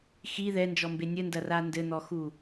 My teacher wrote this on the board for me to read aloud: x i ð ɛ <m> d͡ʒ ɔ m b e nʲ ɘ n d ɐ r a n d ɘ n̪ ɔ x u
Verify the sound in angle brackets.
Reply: incorrect: n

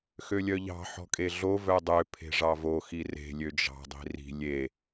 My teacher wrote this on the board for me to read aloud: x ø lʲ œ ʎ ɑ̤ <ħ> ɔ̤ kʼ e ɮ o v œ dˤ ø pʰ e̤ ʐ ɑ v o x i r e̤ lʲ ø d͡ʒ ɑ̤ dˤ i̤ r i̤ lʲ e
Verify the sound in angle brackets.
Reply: correct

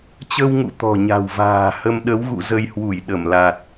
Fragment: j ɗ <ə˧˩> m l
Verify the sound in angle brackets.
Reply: correct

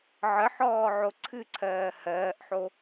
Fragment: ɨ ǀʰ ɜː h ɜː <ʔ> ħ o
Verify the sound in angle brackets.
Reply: correct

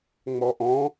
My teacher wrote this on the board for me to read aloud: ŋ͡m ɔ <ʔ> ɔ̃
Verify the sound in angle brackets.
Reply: correct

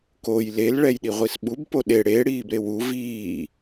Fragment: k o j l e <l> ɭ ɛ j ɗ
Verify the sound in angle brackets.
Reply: correct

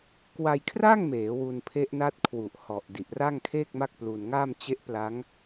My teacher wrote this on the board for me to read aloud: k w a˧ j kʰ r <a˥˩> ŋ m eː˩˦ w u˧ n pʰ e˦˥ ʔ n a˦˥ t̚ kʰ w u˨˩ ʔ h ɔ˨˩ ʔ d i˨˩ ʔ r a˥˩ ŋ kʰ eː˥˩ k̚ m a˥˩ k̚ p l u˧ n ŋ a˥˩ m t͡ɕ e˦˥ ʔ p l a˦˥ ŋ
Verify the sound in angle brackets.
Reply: correct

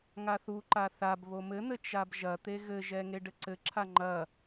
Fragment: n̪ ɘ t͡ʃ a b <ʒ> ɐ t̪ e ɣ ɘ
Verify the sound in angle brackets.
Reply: correct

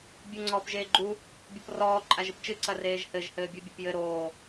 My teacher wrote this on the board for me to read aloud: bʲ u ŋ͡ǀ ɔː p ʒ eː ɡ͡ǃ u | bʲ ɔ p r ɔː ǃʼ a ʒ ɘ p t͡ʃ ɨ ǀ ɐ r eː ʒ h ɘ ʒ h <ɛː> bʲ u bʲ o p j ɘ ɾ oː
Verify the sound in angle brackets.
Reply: incorrect: ɘː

